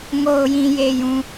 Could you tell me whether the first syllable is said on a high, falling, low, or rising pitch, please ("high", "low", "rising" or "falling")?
low